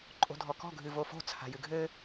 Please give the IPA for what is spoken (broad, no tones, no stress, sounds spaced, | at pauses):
ǃʼ o̤ dʱ ɔ k ɔ̤ ɡʱ ɨ v o f o̤ t͡sʰ a̤ j ɨ ɡʱ ɘ